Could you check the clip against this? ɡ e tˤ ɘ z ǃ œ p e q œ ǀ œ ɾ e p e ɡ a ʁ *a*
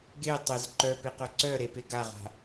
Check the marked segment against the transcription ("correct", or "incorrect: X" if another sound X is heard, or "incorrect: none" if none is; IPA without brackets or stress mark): incorrect: a̤